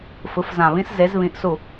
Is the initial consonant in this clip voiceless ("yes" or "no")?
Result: yes